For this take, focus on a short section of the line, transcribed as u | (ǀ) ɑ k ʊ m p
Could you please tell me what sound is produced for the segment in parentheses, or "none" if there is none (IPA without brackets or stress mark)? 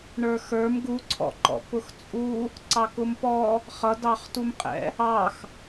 ǀ